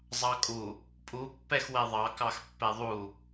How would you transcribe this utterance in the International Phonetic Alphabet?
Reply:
zˤɑkʼu | pʼupːɛx wɛðˤɑkɑx pːɛðˤu

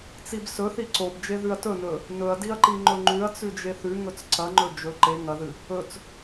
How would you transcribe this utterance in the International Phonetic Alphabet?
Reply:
t͡sibsɵθi ǀobd͡ʒe ðʉɐ̯tɵnɵ | nɵɐ̯diɐ̯ ǃiŋ͡ǃɵŋ͡ǃʉɐ̯t͡sʉ d͡ʒeθʉŋɵt͡s ǀɐŋ͡ǃɵ d͡ʒɵ ǃe ŋɐðɨ | ɵt͡s

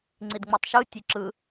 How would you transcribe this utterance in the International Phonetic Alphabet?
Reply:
ŋ͡ǀidŋ͡metˤʃɯ tʲuǁɯ

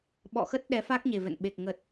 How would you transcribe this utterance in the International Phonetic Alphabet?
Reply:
ɓɔ̰˧˨xə˦˥t̚ ɗɛ˨˦fa˦˥k̚ɲe˨˩ vɛ̰˧˨nɓe˨˩k̚ ŋə˨˩t̚

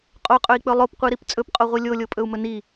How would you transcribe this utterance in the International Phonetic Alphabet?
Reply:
qʼoqʼɵi̯k͡pɵ lˠopqʷiɾip t͡sʼɵpqʼoʁʷi lʲolʲopʼɵu̯mɵ ni

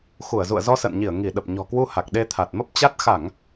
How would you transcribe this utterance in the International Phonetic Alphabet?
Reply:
xu˧˩ə̯zṵ˧˨ə̯ zɔ˧sə̰ː˧˨nɲi˧˩ə̯ ŋi˧˩ ɗə˨˩p̚ɲɔ̤˨˩ kwu˧ha˨˩k̚ ɗe˧t̪ʰa˨˩t̚mə˦˥p̚ t͡ɕa˦˥t̚ xa˧˩˨ŋ

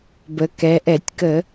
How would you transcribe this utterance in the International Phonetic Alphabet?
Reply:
bə˩˧kɛ˩˧ʔɛ˧˩˧tʲkə˧˩˧

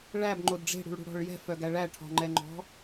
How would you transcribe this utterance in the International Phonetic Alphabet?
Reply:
ɭæbŋ͡ǃod ɖ͡ʐe̤ɽṳɭɽṳɽɔ̤ɭ jɛ̤fœɡæ ɭæ ʈʰɔ̤ŋ͡ǃɛŋ͡ǃɔ̤

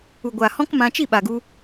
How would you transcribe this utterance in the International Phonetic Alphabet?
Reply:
u˨ɡʷa˨hɔ̃˦kmã˧ t͡ʃi˦˨ɓa˨ɡu˧

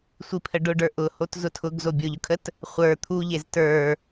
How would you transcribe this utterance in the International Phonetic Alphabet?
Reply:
sʷipʰəɖʊɖə˞ ʔʊhot zʊtʰʊɡzo bʲʊʎʊkʰət | χʷə˞ t̪ʰuʎez tə˞

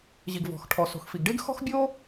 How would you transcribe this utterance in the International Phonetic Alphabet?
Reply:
ʑi˩ɡvɔ̤˩xʈʰɔ˩ so̤˩xfi˩ɡɖe˥ɡ xɔ̤˥xbʲo˥

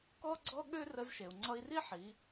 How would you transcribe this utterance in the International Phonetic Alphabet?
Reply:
kɔ˥ɡ͡ǀɔ˥ɠø˥ rə˧zʃe˩u̯ŋ͡ǀʌ˧i̯ri˥ ħi˩˧

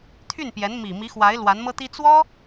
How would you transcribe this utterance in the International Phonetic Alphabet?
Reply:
t̪ʰy˥˩npjɛ˧˥n mi˨˩ mi˧˥xwa˧˥ɪ̯ lwa˧˥nmɤ˥t̪i˥ t͡swɔ˥

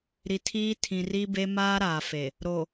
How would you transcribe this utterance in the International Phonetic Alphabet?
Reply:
ɾi˨tʰiː˦ tʰĩ˨ri˦be˦ maː˦ɾaː˨fe˨ | ɾo˨

